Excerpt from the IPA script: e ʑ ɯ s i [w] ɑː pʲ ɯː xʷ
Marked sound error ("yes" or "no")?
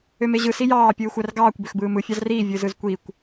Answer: yes